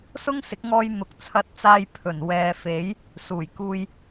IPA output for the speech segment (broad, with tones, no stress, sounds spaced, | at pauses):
s ʊ˥ ŋ s ɪ˨˥ k̚ ŋ ɔː˧ j n̪ ʊ˨ k̚ t͡sʰ ɐ˧ t̚ t͡s aː˧ j pʰ ɵ˨˩ n w ɛː˨˧ f e˨˥ j | s uː˨˩ j k uː˧ j